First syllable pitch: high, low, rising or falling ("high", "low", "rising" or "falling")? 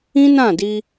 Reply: high